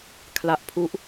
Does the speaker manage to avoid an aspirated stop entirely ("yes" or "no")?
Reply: no